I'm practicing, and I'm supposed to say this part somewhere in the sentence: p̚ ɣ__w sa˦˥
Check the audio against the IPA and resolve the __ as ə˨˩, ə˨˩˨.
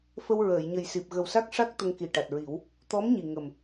ə˨˩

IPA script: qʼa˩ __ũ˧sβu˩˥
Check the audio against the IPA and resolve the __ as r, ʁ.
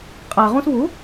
ʁ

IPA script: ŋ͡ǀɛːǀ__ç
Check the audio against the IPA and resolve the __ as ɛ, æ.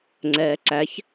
æ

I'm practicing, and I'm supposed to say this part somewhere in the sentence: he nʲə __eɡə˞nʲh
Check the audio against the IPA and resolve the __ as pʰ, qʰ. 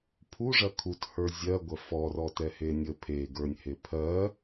pʰ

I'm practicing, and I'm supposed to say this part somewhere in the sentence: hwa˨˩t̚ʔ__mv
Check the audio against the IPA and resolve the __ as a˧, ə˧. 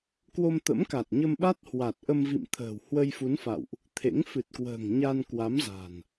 ə˧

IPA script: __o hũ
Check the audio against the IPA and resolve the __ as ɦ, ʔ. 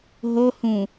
ɦ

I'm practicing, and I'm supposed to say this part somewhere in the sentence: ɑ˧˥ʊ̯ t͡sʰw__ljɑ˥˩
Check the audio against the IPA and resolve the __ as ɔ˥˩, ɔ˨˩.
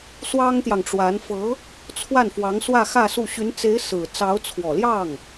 ɔ˨˩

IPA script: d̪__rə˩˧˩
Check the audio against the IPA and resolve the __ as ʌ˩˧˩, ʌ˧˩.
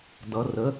ʌ˩˧˩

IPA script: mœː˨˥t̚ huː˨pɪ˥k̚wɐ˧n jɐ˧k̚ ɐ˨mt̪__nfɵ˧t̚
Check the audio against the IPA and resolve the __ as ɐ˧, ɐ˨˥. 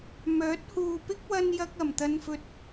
ɐ˧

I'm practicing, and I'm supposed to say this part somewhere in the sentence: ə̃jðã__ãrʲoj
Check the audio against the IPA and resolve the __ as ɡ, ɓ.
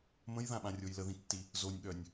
ɓ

